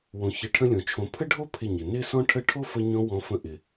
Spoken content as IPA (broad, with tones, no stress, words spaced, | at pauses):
wõ˨ çɪ˨˦ʈʰə̃˦lʲõ˨ t͡ʃʰõ˨pʰə˦ɖʱo˦ pʰɪ˦˨ɲɪ˨ nɪ˦sɔ̃˦ʈʰə˦ ʈʰo˦fə˧ɲɔ̃˧ wɔ̃˧fə̃˧ ʔɪ˨